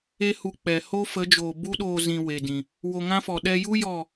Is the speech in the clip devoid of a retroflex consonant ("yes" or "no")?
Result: yes